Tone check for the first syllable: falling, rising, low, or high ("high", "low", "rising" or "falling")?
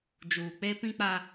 low